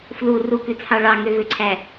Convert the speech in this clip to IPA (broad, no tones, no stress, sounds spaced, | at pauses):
f l u r u k ʉ t͡sʰ ɑ ɭ ɑ ŋ ø v ø ǀʰ æ